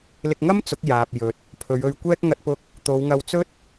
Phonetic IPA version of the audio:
l ɪ˧ k̚ ŋ ɐ˥ m t͡s ʊ˨˥ k̚ j aː˨ p̚ j ɵ˨ t̚ | pʰ ɵ˨˧ ɥ ɵ˧ ɥ kʷ ɛː˥ k̚ ŋ ɐ˧ t̚ p ʊ˧ k̚ | t̪ o˨˧ w ŋ ɐ˧ w t͡s ɵ˥ t̚

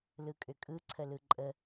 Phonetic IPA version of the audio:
l ɯ kʼ ʏ kʼ ɯ ǀʰ ə l ɯ ǃʼ ə

